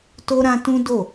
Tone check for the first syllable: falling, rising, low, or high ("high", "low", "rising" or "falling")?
high